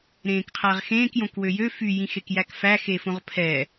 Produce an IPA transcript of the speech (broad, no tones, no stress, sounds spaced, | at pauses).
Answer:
ɾ ẽː k qʰ æ ʁ x ẽː k j õ k w ø j ø f y j ĩ x e k j æ k f æ x e f õ ʁ pʰ ɛ